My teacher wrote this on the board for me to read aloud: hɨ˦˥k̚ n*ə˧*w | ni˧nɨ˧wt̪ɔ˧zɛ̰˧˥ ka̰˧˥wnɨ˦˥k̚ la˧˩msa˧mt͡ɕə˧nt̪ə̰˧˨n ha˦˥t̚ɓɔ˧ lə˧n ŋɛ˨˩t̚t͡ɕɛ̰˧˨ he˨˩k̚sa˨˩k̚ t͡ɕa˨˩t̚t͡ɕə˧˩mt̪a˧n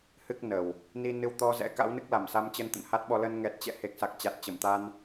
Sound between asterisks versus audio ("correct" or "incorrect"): incorrect